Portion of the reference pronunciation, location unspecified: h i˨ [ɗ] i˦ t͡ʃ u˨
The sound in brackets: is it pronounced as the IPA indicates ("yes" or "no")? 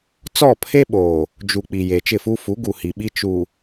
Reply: no